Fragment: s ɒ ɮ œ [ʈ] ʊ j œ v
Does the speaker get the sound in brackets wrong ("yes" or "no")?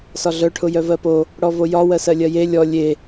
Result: yes